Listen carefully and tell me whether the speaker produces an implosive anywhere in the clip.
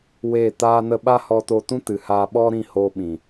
yes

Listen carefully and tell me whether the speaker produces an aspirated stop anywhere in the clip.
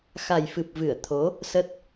yes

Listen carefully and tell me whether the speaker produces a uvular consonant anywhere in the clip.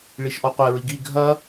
yes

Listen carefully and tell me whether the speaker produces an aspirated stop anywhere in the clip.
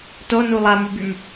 no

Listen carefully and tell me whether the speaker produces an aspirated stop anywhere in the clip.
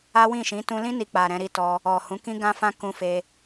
no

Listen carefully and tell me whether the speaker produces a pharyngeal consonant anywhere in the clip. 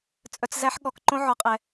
yes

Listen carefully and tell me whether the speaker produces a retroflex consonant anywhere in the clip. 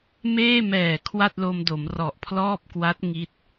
no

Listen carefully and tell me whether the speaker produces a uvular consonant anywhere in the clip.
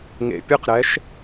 yes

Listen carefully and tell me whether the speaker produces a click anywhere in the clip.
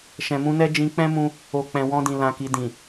no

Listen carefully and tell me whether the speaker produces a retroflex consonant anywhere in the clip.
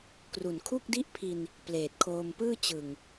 no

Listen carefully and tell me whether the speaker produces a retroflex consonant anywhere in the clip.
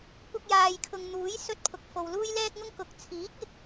no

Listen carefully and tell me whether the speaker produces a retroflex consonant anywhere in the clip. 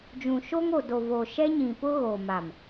no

